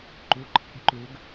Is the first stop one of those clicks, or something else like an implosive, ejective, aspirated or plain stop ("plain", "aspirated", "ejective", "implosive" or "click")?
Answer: click